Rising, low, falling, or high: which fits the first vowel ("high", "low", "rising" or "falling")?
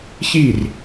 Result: falling